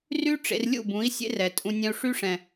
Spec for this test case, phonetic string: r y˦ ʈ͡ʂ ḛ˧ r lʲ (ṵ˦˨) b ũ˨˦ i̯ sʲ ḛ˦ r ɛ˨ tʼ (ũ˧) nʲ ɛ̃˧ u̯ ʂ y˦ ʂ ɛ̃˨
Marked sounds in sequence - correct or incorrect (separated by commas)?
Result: correct, correct